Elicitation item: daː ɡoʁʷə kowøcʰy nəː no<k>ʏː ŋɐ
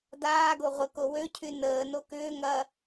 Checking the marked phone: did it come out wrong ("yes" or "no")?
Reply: no